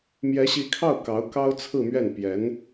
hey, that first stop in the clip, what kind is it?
aspirated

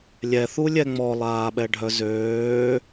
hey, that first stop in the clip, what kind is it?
implosive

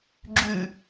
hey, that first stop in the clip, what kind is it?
click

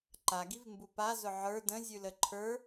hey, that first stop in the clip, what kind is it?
click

